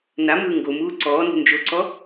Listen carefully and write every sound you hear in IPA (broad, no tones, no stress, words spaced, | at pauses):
namɯː ŋɡomuː ǀɔːnṳ nd͡ʒoǀɔ